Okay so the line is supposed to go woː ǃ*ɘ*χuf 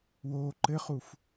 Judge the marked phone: correct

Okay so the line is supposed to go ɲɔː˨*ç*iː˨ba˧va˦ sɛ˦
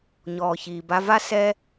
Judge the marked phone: correct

